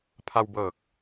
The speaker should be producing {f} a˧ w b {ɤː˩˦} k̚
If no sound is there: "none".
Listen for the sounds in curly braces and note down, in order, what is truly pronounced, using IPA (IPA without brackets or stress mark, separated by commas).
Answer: pʰ, ɤː˨˩